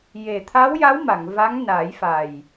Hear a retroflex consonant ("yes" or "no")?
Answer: no